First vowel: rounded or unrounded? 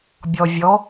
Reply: rounded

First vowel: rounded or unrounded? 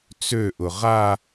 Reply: rounded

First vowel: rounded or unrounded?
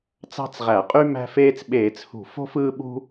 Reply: unrounded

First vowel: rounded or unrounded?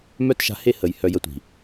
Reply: rounded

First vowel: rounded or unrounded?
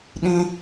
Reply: unrounded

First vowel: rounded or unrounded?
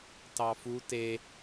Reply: unrounded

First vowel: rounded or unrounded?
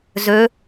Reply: rounded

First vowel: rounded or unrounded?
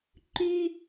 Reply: rounded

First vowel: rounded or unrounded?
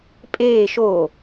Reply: unrounded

